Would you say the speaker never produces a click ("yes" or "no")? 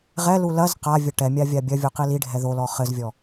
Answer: yes